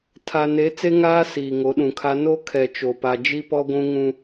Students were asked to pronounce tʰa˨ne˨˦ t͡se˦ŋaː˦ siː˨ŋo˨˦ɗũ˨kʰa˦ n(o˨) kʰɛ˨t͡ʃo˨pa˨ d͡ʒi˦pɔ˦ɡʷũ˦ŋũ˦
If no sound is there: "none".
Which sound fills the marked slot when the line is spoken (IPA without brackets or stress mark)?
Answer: o˦